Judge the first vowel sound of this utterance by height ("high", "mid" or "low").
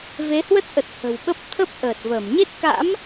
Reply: mid